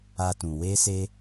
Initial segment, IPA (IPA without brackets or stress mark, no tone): a